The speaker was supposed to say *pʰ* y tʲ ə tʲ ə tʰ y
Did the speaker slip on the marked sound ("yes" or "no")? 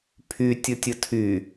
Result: no